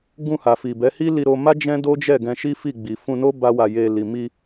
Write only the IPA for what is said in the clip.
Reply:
ɡũ˧ha˨ fi˨bɛ˨˦hi˦ li˧ɾo˧ma˦ d͡ʒɛ̃˦do˦d͡ʒɛ˦˨ ɡɛ̃˧ʃi˦fi˦˨ ɡ͡bi˨fũ˧no˦ ba˦wa˧ je˧ li˨ mi˧

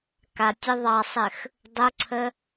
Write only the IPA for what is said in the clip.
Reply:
katʲɘ ðˤɑsˤɘx | dˤʊǀʰə

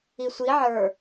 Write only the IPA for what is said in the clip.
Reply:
isʷi ʕə˞

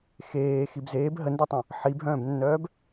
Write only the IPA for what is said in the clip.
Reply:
xeː xibzeːb ɦəndotˤœ̃ | ħibɦœ̃ːbnːœːb

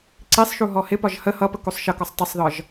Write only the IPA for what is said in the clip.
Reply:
ǀisˤʃu ɦɔhɪpɒʒ hə hʌpə kusˤʃʌkɔsˤ tˤɪsˤðɒʒ

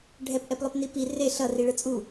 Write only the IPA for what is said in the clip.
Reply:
ɖʱɛpʔɛplˠopni pi re ɬʌ riɭɯt͡sʼu

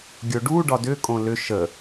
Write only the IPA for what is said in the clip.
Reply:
ɡʲoɖuɖɒ dʏkʼõ lʏ ʃə

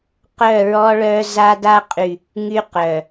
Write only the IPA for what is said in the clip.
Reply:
qœ˦˨ɹɔ˦ɭœ˦ za˦da˦ qʼy˨ | ŋy˦qœ˨

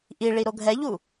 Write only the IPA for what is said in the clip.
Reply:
ʔiɭi ɾoɡʱɛʎu

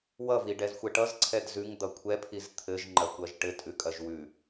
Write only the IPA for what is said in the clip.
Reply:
wʌviɖɛzxʷɛ ʈʌzǀʰɛd zʉŋd̪ʌ kʷʰɛpʰiz t̪ʰɘʒŋ͡ǃɐkʷɐʒ ʈɘtʼʉkʼɐʒ wʉ

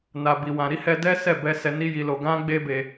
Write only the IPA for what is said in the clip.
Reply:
na˧bi˧wã˧ ɾi˦hɛ˧dɛ˦ sɛ˦˨bɛ˧ sɛ˧ni˦ji˧lo˧ ɡã˦ɡ͡be˦be˧

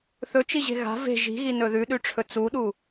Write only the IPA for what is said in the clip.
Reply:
θɵt͡ʃiʑe̤ ɣa̤ ve̤ ʒi̤ɣi nɵðʉɗʉʈ͡ʂʰɵ t͡suɗu

